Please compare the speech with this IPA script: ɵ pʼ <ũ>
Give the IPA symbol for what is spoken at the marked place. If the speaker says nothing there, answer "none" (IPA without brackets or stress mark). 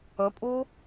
u